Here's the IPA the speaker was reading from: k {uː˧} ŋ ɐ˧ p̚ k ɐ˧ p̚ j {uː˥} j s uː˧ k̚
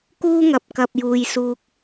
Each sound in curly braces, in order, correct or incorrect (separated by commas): incorrect, incorrect